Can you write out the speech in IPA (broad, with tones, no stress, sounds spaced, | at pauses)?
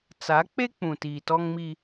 t͡s a˨˦ k͡p e˦ k͡p ũ˨ t iː˨ t ɔ˦ ŋ m i˦